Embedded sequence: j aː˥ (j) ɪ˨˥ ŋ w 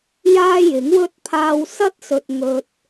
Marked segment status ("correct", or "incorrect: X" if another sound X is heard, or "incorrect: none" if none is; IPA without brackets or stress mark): correct